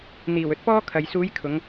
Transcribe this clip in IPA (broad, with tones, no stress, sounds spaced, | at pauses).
n̪ iː˨˩ w ɵ˥ t̚ p ɔː˥ kʰ ɐ˨ j s uː˨˧ j kʰ ʊ˨˧ ŋ